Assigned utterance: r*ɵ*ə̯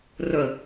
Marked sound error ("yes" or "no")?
no